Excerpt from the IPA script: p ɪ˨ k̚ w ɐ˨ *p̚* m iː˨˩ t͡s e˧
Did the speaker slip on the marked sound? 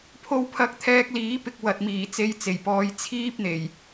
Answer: yes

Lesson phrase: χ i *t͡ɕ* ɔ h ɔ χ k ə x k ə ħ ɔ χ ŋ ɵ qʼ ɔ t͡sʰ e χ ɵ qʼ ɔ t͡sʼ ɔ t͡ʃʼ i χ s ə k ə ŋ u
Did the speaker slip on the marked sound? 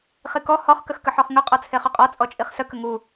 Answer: yes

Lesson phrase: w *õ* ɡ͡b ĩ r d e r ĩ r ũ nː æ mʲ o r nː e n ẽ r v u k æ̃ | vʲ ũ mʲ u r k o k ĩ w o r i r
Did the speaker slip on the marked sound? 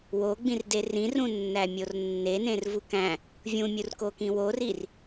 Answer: yes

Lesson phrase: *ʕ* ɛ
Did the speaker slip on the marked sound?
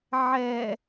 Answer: no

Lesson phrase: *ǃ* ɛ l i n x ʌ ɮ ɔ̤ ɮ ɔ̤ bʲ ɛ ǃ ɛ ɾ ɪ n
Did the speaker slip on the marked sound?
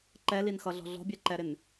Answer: no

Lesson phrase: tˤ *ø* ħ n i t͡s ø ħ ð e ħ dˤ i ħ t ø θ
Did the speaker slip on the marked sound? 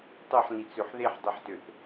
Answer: no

